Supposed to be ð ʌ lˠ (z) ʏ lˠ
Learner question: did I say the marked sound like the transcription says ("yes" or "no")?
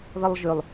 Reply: no